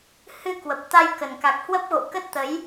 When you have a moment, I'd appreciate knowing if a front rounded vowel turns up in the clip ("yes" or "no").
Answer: no